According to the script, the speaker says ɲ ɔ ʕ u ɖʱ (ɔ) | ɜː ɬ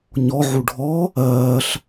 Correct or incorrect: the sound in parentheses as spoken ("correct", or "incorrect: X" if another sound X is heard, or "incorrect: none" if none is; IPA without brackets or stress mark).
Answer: correct